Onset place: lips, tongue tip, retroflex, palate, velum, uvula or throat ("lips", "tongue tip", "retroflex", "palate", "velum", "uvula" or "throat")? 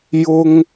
palate